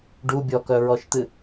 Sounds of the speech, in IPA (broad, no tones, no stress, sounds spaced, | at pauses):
ɖ u bʲ ɔ k œ ɹ ɔ ʃ t̪ ɨ